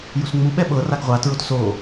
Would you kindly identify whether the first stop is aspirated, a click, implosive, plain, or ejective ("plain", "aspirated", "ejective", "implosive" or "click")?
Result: implosive